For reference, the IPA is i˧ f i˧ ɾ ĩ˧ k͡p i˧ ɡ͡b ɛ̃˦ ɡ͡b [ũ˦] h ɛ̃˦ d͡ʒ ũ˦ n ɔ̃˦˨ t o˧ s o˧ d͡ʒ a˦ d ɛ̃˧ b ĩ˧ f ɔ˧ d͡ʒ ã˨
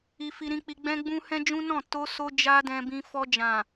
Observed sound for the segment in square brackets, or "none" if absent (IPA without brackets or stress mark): ũ˦